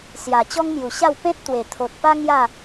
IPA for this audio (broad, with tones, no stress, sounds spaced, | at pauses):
s j a˨˩ t͡ɕ ɔ˦ ŋ m j u˨˩ ɕ a˥˧ w p ẽ˦ t̚ t̪ w e˨˩ t̪ʰ o˨ t̚ p a˦ ŋ j a˥˧